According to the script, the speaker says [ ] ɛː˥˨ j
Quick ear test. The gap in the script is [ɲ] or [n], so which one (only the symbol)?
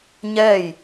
ɲ